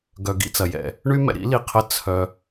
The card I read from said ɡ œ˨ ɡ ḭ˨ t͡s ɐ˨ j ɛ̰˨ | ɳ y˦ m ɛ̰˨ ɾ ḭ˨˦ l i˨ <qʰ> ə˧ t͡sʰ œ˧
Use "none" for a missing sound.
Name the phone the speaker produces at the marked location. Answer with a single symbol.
qʰ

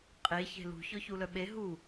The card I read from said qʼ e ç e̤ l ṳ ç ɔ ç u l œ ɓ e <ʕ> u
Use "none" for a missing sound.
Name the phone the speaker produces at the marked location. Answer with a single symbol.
ɦ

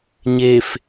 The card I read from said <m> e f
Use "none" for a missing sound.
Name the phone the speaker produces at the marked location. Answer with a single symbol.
ɲ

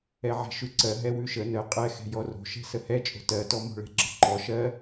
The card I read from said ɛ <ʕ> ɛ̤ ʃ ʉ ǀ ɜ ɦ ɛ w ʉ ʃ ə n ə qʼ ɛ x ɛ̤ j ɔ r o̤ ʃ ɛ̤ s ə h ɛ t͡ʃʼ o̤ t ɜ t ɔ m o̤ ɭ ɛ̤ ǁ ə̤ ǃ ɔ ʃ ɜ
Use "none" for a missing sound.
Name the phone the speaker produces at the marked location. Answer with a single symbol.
ʕ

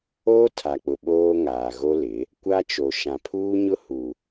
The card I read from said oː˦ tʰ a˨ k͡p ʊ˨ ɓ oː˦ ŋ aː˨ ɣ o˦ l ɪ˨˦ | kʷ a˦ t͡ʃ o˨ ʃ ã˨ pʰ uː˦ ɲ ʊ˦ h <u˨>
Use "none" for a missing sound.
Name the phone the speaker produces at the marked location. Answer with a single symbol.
u˨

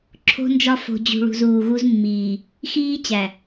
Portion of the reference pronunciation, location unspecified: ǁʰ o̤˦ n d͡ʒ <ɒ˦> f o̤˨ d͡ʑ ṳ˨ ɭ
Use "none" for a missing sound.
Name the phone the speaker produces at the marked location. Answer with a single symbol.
ɒ˦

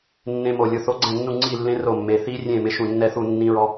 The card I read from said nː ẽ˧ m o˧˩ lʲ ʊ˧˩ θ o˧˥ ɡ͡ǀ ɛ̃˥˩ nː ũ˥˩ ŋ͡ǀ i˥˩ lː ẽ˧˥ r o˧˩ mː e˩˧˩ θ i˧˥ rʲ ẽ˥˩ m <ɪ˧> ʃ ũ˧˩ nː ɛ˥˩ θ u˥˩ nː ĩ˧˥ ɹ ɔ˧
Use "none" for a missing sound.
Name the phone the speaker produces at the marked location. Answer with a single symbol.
ɪ˧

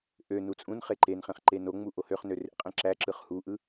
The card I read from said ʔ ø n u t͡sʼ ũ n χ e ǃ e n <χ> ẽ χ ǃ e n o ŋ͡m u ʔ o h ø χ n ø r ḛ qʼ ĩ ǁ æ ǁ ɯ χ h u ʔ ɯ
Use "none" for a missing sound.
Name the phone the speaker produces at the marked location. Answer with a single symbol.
χ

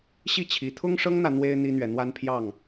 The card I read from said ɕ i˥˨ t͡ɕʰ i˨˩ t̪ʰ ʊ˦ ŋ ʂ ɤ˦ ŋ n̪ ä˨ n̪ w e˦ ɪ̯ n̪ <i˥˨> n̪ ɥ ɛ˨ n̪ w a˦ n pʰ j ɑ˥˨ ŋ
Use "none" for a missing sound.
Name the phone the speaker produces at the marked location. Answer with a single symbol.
i˦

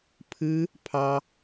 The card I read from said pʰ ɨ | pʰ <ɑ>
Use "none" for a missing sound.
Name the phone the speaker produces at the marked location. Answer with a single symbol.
ɑ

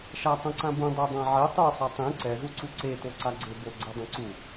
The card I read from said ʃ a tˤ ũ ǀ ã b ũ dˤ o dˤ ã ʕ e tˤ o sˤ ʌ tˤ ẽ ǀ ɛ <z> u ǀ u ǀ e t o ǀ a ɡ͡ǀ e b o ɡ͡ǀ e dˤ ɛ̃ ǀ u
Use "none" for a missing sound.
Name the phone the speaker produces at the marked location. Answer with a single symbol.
z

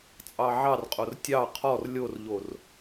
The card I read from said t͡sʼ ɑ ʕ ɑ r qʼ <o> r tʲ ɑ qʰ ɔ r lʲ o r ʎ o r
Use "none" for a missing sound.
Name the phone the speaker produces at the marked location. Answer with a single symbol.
o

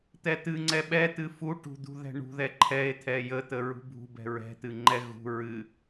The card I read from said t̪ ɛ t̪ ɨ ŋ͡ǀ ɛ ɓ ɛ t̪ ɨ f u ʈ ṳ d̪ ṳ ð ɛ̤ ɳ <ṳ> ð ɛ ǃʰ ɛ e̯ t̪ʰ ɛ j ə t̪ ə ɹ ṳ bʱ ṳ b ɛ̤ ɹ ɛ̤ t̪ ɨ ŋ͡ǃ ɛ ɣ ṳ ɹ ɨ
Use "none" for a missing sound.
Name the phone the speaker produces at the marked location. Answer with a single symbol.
ṳ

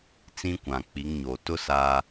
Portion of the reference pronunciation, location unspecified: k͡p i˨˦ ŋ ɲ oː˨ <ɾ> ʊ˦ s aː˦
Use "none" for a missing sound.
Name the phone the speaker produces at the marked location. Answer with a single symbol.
t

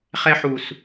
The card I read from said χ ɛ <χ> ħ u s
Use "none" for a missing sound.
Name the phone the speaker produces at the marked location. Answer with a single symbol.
none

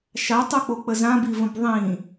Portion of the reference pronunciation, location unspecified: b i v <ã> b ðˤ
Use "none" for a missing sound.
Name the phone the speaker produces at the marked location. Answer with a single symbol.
ə̃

